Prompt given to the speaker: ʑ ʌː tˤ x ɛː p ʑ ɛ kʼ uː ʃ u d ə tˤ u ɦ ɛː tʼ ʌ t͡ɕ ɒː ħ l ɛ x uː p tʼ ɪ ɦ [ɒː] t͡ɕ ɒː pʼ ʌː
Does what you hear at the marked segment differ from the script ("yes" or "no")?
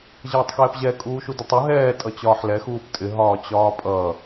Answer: no